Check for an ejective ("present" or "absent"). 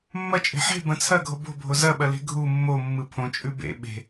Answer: present